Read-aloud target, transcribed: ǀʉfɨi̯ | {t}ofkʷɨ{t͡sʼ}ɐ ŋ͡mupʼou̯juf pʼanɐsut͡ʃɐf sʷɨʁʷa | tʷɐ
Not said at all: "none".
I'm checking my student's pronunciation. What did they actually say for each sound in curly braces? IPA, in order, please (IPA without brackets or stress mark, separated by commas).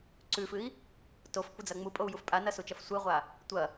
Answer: t, d͡z